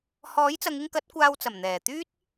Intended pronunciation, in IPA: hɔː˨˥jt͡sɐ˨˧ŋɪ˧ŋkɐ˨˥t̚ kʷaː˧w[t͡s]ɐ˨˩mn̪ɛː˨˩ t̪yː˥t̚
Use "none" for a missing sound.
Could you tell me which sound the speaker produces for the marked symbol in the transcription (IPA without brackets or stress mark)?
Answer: t͡s